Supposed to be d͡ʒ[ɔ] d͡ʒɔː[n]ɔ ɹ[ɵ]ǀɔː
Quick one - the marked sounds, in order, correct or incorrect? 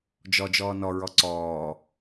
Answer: correct, correct, incorrect

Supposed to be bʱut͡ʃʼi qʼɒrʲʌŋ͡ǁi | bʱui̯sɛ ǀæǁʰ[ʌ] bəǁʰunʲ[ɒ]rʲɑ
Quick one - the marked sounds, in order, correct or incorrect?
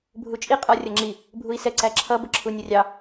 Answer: correct, incorrect

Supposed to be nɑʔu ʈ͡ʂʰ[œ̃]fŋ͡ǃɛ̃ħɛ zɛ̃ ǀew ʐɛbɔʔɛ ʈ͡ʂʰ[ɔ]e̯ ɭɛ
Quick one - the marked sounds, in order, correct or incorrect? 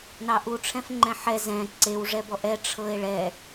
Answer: incorrect, incorrect

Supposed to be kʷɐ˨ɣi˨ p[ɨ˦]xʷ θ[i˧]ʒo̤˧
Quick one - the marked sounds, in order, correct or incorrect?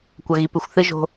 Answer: incorrect, incorrect

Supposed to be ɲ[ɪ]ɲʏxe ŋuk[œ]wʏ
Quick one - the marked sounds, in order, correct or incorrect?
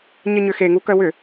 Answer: correct, correct

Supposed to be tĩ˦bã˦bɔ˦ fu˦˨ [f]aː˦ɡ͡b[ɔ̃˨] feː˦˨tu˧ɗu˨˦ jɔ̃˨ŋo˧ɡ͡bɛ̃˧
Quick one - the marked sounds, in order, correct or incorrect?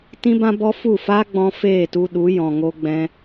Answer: correct, incorrect

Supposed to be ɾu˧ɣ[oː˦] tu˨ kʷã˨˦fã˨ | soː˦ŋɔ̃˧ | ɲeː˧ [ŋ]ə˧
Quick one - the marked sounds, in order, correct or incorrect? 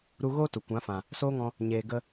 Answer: correct, incorrect

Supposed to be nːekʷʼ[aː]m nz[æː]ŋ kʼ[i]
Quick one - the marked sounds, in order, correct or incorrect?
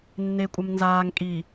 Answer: incorrect, incorrect, correct

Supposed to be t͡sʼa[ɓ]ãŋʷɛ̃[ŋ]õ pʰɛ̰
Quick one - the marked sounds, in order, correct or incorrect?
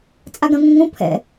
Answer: incorrect, correct

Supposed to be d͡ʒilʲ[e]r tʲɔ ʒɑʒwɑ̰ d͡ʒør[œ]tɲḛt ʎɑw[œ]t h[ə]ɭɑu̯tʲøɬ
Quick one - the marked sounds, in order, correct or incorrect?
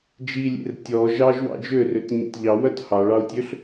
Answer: incorrect, incorrect, correct, incorrect

